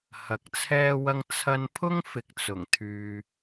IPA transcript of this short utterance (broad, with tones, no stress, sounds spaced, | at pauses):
h ɐ˨ k̚ t͡sʰ ɛː˥ w ɐ˥ ŋ t͡sʰ ɐ˧ n pʰ ʊ˥ ŋ f ɪ˨ k̚ t͡s ʊ˨˩ ŋ t̪ʰ yː˨